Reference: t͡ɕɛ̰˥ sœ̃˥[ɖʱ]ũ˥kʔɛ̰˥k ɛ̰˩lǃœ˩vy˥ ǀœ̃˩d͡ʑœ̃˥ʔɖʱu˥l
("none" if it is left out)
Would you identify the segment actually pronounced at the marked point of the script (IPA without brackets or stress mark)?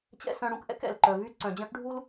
ɽ